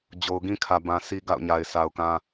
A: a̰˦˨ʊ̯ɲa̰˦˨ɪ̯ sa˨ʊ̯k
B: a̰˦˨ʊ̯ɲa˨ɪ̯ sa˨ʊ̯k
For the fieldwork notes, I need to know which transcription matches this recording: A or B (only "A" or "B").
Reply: B